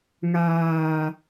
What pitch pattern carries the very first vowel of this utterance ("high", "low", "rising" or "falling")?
low